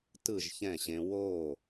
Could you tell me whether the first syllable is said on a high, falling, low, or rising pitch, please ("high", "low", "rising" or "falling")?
falling